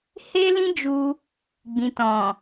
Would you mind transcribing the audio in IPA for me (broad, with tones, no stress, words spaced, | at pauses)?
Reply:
he˦lĩ˦d͡ʒu˧ | ɡ͡bĩ˨tɔ̃˨